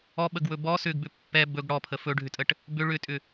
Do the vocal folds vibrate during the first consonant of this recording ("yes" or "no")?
yes